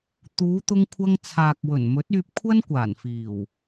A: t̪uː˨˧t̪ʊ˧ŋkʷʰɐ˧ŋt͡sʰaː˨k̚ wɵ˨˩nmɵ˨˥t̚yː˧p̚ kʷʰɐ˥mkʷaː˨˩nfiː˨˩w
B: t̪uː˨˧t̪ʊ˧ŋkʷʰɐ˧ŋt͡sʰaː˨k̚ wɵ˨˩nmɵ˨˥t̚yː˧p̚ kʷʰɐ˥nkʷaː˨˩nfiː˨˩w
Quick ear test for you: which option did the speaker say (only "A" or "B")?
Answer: B